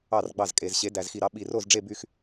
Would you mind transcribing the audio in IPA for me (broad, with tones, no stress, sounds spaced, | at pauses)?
ɑ˥˩ r ɡ͡b ɑ˥˩ z kʼ e˨˩ z ɕ e˩˥ d æ˨˩ z x i˨˩ ɾ ɑ˩˥ ɓ i˨˩ r o˥˩ z ɖ͡ʐ e˥˩ b y˥˩ x